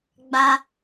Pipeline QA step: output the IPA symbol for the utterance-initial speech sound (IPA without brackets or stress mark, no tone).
ɡ͡b